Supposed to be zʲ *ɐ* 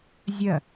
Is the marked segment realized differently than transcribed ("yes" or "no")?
no